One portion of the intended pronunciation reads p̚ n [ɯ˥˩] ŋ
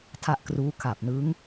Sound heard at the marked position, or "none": ɯ˦˥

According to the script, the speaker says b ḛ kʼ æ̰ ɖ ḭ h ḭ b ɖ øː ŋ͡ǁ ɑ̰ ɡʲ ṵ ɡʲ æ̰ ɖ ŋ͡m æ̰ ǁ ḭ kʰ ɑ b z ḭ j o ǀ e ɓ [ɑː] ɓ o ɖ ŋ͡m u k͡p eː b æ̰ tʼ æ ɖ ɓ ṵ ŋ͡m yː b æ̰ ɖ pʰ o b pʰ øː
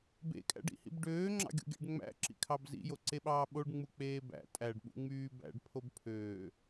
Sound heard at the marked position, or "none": ɑː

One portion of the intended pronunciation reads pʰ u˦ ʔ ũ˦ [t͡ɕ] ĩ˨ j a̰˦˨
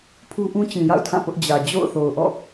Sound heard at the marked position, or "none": t͡ɕ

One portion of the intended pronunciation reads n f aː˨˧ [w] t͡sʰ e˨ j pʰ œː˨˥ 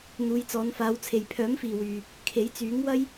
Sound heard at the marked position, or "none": w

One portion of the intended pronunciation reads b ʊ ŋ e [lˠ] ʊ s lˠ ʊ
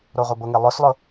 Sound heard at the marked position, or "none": lˠ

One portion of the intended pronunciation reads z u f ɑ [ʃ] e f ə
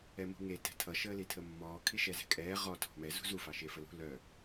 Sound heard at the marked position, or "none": ʃ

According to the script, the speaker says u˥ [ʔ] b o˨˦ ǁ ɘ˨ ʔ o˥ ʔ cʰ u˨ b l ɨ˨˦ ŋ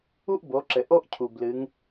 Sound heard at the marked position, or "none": ʔ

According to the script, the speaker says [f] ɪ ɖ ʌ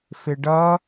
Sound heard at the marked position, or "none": f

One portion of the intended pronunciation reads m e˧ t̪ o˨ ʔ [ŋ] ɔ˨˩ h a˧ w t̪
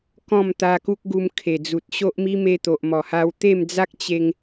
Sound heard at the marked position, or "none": m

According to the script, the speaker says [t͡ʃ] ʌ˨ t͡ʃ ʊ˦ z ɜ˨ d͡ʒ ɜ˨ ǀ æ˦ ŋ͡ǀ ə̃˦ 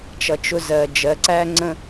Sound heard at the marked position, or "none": t͡ʃ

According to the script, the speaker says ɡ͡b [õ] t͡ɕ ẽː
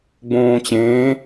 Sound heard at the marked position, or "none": õː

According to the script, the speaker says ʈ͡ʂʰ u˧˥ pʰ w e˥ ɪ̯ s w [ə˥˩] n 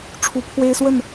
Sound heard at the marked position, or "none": ə˥˩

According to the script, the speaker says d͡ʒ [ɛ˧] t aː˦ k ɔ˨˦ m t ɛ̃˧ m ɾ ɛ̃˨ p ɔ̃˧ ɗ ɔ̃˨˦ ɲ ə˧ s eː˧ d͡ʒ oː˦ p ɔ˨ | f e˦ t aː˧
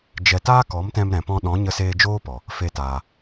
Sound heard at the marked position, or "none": ɛ˧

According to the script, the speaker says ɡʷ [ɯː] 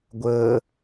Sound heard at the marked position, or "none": əː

